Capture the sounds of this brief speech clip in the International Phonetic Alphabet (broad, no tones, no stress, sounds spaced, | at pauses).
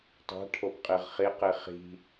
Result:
tˤ a̤ ʈʰ o p qʼ i ʁ χ i q i χ i̤